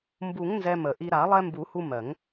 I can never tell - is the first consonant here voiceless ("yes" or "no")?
no